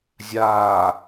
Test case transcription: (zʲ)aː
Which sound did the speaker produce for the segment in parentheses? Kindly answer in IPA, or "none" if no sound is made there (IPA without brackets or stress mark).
zʲ